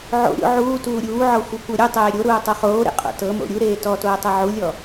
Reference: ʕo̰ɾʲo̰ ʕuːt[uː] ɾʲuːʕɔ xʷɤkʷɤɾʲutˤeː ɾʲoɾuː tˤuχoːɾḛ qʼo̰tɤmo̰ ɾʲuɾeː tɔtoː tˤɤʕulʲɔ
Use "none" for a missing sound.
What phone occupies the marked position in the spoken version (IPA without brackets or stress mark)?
uː